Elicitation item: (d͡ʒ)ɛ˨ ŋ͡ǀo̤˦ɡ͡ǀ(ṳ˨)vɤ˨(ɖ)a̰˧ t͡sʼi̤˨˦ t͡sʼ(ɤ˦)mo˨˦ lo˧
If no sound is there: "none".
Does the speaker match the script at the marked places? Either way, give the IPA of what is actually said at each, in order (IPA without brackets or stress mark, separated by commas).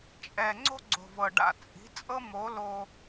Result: t͡ʃʼ, o̤˨, ɖ, ɤ˦